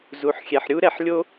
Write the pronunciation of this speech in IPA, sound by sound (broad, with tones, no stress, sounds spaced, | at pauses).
z u˩ ħ xʲ ɛ˩ ħ ɾʲ u˥ ɾ ɛ˨ ħ lʲ o˥